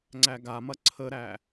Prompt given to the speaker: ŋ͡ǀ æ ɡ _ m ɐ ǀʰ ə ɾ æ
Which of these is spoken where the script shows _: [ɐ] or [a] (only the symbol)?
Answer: a